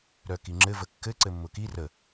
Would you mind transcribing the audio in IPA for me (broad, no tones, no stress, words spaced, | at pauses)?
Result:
ɾœkiŋ͡ǁɘ vəkːɘ ǀɘmːʊki rə